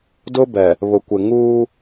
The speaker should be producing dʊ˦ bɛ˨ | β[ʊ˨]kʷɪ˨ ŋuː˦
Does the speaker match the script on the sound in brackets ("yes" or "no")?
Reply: yes